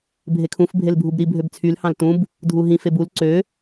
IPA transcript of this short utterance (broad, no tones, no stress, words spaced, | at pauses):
bʱekʰũf bʱelbʱubɾi bʱøbt͡sʰyl hɑ̃ltũb | dʱuɦĩf ebul ǀø